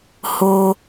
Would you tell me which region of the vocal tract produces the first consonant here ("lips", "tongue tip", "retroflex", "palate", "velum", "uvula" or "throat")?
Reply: throat